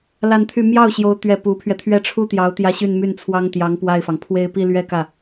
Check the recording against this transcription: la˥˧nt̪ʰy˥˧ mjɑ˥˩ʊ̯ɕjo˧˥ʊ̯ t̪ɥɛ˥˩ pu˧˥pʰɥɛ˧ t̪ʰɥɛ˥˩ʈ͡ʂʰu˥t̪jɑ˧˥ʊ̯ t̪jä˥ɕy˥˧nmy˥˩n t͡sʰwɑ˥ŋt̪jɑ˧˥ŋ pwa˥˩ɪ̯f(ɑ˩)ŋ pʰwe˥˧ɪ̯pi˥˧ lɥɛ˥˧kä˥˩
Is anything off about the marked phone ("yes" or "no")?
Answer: no